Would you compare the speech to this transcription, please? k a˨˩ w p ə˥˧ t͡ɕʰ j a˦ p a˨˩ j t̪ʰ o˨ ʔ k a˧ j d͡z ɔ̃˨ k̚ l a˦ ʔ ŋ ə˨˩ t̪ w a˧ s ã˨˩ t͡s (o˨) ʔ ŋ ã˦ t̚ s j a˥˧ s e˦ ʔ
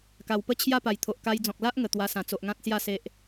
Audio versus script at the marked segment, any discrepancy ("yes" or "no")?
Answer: no